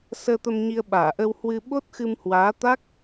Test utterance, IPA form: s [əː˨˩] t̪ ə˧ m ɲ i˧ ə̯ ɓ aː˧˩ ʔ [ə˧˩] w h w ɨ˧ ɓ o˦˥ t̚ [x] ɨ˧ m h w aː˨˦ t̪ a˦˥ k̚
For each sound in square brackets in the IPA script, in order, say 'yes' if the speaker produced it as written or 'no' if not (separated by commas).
no, no, yes